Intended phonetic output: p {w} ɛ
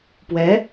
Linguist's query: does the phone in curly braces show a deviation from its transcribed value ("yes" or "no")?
no